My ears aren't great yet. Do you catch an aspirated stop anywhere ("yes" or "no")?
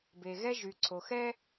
yes